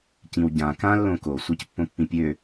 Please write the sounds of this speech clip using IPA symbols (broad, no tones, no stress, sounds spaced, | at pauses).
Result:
c ĩ w ɟ ã k ã lː õ k o sʷ e c pː õ pː ĩ pʲ ø